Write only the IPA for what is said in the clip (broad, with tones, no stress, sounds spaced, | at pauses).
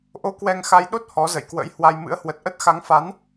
ʔ o˧ k w ɛ˧ ŋ x a˧ j ɗ o˦˥ t̚ h ɔ˨˦ z ə̰˧˨ j k w ə̰˧˥ j h w a˧ j m ɨ̰˧˥ ə̯ h w ə˨˩ t̚ ʔ ə˦˥ t̚ x a˨˦ ŋ f a˨˦ n